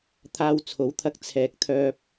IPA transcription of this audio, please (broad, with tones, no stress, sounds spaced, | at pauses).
t̪ʰ aː˧ w t͡sʰ o˨˥ w t̪ʰ ɐ˧ k̚ t͡sʰ ɛː˨ k̚ t̪ʰ œː˧ p̚